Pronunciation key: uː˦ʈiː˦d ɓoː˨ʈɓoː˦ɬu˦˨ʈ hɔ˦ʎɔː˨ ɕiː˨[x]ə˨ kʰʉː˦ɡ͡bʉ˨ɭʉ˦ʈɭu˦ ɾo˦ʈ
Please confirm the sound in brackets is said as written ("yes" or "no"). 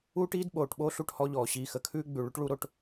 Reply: yes